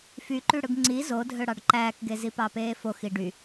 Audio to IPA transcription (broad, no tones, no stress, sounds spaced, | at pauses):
f y ǃ y ɽ ɯ ɡ ŋ͡ǀ i z o dʱ ø ɽ ɑ ɖ ǃ æː k ɡ e z i p ɑ p eː f o x i ɖ y